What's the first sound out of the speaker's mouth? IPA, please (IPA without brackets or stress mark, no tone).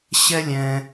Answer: ɕ